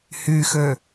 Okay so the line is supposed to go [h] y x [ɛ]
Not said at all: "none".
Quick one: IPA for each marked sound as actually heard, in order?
h, ø

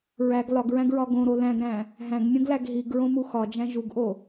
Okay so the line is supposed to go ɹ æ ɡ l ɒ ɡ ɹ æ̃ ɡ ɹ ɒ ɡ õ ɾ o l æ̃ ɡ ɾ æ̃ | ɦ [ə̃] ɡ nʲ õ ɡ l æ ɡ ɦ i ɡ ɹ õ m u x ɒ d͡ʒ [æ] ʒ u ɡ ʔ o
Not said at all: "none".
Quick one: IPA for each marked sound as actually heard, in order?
æ̃, æ̃

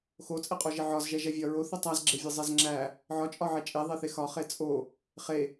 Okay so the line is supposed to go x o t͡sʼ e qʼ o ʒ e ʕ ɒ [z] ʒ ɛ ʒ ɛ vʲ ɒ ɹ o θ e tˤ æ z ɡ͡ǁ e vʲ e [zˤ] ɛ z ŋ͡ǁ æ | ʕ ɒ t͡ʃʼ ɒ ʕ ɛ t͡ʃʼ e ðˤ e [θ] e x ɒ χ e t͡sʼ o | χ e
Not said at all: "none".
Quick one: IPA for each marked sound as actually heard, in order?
z, zˤ, θ

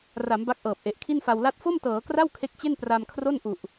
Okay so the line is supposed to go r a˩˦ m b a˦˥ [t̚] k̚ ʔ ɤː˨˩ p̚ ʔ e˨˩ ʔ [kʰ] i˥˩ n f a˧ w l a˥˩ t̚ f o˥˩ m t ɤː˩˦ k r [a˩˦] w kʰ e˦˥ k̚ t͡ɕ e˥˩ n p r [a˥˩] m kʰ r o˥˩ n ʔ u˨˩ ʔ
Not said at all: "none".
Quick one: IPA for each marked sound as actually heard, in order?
none, kʰ, a˥˩, a˧

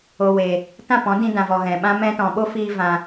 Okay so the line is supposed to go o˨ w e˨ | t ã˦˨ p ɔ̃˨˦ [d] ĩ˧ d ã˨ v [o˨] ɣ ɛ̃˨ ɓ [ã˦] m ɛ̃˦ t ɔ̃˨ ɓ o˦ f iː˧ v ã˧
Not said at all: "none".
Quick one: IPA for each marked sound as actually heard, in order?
d, ɔ˨, ã˦

